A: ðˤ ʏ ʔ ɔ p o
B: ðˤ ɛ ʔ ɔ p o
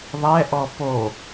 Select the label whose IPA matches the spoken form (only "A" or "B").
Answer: B